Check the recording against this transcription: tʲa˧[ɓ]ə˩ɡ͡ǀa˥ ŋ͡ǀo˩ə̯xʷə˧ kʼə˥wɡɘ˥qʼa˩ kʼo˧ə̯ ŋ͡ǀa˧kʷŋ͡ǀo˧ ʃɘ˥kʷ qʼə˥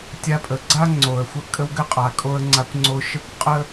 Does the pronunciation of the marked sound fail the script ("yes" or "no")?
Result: yes